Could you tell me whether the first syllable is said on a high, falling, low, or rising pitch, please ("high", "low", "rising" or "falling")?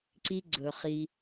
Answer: high